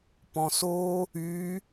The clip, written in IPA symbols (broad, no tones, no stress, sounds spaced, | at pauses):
p ɔ̃ s o | y